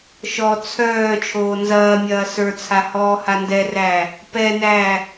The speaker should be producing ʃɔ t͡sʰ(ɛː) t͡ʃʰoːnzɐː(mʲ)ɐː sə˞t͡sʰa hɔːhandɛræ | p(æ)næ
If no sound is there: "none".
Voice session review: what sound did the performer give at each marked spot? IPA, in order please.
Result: œː, mʲ, ɛ

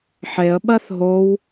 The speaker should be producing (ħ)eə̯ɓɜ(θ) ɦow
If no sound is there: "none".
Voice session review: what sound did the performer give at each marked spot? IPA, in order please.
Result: ħ, θ

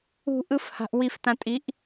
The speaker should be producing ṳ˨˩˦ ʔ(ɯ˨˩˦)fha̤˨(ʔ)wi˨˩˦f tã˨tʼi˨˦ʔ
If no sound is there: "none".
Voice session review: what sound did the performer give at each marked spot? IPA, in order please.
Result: ɯ˨˦, ʔ

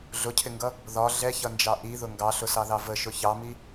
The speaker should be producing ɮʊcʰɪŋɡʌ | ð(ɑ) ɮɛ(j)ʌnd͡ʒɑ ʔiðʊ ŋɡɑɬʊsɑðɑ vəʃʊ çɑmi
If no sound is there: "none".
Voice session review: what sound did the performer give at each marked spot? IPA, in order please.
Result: ɒ, ç

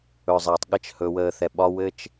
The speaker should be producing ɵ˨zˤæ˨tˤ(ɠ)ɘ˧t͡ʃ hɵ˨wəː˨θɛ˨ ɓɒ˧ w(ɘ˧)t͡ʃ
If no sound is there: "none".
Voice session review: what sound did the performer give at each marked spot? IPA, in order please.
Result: ɠ, ɘ˧

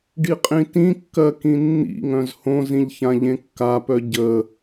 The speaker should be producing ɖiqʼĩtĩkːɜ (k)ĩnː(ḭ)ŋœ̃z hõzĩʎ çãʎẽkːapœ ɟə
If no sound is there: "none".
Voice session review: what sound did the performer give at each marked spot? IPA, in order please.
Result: k, ḭ

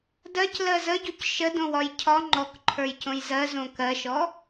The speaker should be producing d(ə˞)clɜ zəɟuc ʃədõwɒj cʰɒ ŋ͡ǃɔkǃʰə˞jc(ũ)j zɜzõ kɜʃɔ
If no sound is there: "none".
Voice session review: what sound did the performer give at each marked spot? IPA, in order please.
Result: ɜ, õ

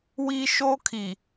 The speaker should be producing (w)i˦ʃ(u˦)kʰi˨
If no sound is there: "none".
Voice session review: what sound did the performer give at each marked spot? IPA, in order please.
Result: w, o˦

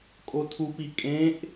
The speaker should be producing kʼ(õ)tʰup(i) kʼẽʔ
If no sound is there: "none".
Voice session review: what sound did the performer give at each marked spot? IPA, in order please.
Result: o, i

